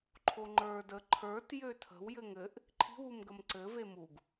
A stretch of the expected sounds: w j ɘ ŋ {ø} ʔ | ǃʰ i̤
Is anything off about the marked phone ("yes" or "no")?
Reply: yes